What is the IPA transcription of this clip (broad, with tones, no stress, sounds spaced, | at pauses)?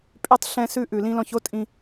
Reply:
pʼ y˧ tˤ ɬ ɛ̃˧ s ʉ˧ ʔ ʉ˨ l ĩ˧ l ɔ̃˧ ç o˦ tʼ ĩ˧